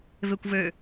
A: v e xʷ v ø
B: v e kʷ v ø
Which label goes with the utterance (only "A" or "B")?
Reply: B